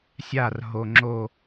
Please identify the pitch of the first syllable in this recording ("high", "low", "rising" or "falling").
falling